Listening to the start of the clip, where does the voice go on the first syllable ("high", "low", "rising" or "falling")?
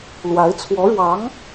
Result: rising